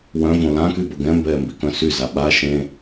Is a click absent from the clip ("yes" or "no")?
yes